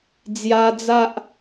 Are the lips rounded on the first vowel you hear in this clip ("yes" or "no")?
no